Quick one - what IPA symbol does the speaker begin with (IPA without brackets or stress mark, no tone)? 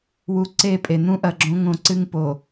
w